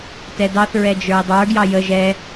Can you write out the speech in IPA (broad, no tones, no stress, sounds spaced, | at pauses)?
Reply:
t ɛ d ɑ θ ɹ ɛ d͡ʒ ə˞ i̯ dˤ ə˞ ɡ j ɑ j ə ʒ ɛ